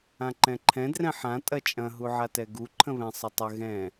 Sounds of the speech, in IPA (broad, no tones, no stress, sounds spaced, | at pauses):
ã ǃ ɛ̃ ǃʰ ɛ̃ d r ɛ̃ ħ ã tʼ ɐ t͡ʃʼ ɐ̃ ɦ u ʕ a t ɛ ɡ u ǃʰ ə̃ β ɛ̃ sˤ ə tˤ ə ɣ ɛ̃